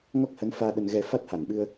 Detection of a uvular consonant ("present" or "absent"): absent